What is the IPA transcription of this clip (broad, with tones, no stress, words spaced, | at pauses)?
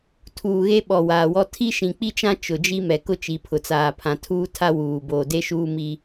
tʰuː˨ɣe˦ɓɔ˨ waː˨wɔ˦ tʰi˦ʃĩ˨k͡pi˦t͡ʃã˦ t͡ʃʊ˨d͡ʒi˦mɛ˨ kʊ˦t͡ʃi˨pʰʊ˨t͡saː˨ pʰã˨tʰuː˦tʰa˦ wuː˨ boː˨de˦ʃuː˦ mi˦